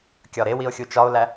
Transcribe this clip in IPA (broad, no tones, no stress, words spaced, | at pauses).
kʲɒɾewio̯ xʲut͡ʃɒo̯læ